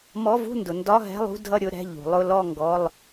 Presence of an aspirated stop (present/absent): absent